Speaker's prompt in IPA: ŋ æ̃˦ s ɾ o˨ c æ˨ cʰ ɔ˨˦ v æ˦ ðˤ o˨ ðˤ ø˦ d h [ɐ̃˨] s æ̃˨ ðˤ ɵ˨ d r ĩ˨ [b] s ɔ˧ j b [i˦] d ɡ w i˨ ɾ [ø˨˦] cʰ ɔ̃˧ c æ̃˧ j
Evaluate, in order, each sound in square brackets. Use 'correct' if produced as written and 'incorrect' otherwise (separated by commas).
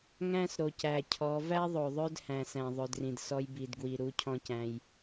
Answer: incorrect, incorrect, incorrect, incorrect